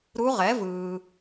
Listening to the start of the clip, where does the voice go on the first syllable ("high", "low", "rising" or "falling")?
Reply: rising